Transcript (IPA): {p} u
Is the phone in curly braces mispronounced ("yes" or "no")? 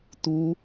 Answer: yes